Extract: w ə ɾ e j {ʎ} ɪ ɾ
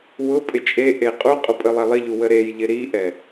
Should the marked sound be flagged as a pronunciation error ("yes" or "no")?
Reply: no